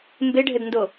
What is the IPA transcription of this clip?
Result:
m b e ɖʱ ɘ d n d o

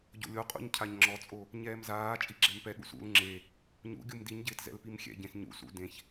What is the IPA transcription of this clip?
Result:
ɟ o̰ lʲ o qʼ ṵ ɲ cʰ a ɲ ŋ͡ǁ ɔ t͡sʼ o | ɲ ɛː m z aː t͡ʃʼ i ɡ͡ǁ ɛ m p ɛ ɠ ṵ s ṵ l ŋ͡ǁ e | ɲ ṵ ɡʲ u m d i ɲ ɟ ɪː t z ɛ̰ l p i m xʲ ɛ̰ ɟ ẽ s ɲ ṵ s ṵ d ẽ ç

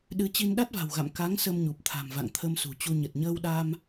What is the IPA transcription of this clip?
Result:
ɗ ɨ˨˦ t͡ɕ i˧ n ɗ a˦˥ t̚ v a̤˨˩ w ɣ a̰˧˨ m k a˨˦ ŋ s ə˧ m ɲ u˨˩ p̚ t̪ʰ a̤˨˩ m v a̰˧˨ ŋ t̪ʰ ə˧ m s ṳ˨˩ t͡ɕ u˧ ɲ ə˨˩ t̚ ɲ əː˧ w ɗ a˧ m

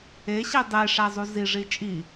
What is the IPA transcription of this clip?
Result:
e ɕ i dˤ e ʂ æ zˤ u z i ʐ i t͡ʃʼ i

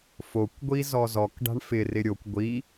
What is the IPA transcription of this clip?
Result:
f o kʷ ɡʷ i z ɔ z ɔ k ɖ a̤ ɳ f ɪ r ɪ ɾʲ o kʷ ɡʷ i

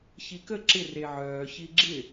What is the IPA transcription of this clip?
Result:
ç i k ə ǁ ɪ r e ʕ œː ç i ɡ͡ǁ ɪ

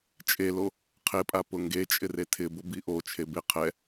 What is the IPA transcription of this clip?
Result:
t͡ʃʼ e l o | qʰ e pʼ a p ʊ ŋ ɡ e t͡ʃʼ ɪ r e tʰ ɪ b ʊ b i ʔ o t͡ʃʰ e b ɪ qʰ ɛ

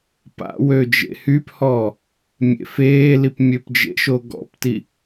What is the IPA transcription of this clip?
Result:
p a̰ w ø d͡ʒ ḛ h y p h ɔː | mʲ ḛ f eː l i p mʲ ø p d͡ʒ ḛ ʃ o ɡ ɔ̰ p t i

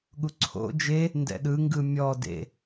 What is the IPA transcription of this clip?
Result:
ɠ u ǀʰ o̰ d͡ʒ e | n d ɛ̰ ɗ ɯ ŋ ɡ ɯ mʲ ɔ d ḛ

